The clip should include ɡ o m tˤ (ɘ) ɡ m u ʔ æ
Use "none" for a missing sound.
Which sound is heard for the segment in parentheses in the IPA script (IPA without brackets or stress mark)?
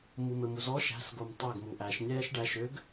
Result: ɛ